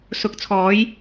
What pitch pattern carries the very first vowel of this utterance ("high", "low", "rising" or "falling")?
low